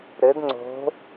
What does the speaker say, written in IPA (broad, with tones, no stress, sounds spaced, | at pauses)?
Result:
ɾ ɘ˧˥ d ŋ͡ǀ o̤˧˥